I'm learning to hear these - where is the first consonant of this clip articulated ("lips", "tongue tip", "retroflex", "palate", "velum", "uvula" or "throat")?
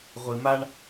uvula